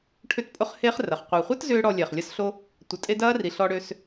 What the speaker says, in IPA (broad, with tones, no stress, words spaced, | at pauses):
ʈʰʏ˦tpʼʊ˦χheː˦χ rɐ˨χ qʷɛ˨χʷɐ˦t zʏː˦ɽɔ˧lʲɛ˨χ lʲɐ˧sɬo˧ | tʷɐ˨tʼe˧ dɐː˦ri˨ ɬɔ˧ɽø˧s